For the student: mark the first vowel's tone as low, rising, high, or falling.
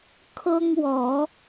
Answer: high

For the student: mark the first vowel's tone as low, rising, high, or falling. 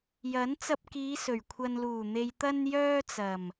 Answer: rising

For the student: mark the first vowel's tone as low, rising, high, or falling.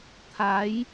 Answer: rising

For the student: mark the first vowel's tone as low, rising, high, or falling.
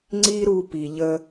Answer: high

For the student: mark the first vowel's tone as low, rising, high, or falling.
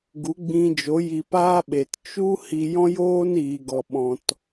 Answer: rising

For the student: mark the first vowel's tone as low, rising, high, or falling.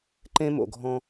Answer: high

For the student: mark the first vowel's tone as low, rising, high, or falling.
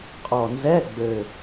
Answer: low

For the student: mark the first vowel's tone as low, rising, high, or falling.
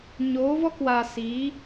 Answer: rising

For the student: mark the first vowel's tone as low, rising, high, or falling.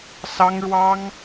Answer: high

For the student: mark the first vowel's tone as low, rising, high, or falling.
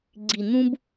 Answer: low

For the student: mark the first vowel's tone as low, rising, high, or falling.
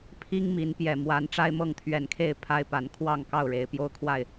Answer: high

